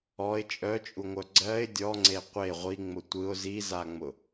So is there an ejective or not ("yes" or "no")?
yes